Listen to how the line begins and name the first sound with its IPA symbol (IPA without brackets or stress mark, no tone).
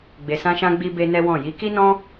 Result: ɡ͡b